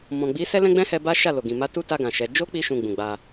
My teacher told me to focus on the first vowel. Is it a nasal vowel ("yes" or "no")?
yes